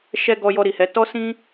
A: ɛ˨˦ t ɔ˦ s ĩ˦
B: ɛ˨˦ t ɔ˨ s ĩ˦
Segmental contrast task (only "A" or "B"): A